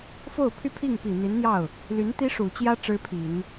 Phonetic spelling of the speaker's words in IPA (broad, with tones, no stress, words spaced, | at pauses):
fo˥˩ʊ̯pʰy˥pʰi˥˩ŋ pi˨˩n̪i˧˥nn̪jɑ˥˩ʊ̯ | ly˧˥nt̪i˥ ʂu˨˩t͡ɕjä˥ ʈ͡ʂɻ̩˥pʰi˨˩˦n